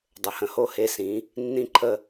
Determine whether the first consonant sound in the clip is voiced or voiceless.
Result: voiced